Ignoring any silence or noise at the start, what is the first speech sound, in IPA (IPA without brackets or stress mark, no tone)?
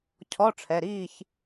cʰ